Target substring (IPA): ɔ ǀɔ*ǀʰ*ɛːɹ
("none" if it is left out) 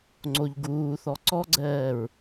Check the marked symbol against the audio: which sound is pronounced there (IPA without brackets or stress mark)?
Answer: ɡ͡ǀ